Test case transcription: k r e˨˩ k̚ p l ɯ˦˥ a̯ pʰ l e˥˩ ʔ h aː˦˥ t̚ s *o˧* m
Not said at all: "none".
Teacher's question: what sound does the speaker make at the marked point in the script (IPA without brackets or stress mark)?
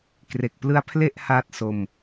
o˧